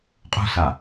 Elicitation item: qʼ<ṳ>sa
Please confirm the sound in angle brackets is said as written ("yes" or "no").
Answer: yes